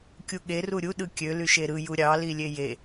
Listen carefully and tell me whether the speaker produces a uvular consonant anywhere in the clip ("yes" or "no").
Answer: no